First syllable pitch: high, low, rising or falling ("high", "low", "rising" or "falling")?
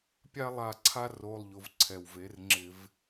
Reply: high